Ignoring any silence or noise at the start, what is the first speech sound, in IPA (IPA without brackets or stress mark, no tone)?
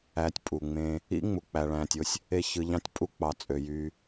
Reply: æ